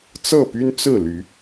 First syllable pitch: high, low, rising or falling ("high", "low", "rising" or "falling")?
falling